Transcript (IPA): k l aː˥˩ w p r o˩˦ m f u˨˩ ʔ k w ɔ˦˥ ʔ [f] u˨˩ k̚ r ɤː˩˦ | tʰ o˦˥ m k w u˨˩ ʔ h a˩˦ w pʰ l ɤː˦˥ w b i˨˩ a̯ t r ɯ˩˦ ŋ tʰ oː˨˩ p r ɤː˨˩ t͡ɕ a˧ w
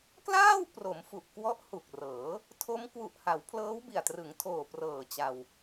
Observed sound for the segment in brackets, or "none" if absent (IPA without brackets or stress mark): h